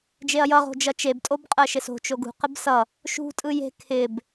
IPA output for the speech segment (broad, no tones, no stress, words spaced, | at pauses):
d͡ʒeɐ̯jʌ ʁo̤d͡ʒʌt͡ʃeb tʼobqʼɜʃɪso̤ t͡ʃoɡṳ qɪbsʌ | ʃṳ tʼɯje̤ kʰɪb